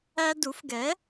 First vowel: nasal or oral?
oral